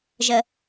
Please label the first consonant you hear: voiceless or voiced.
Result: voiced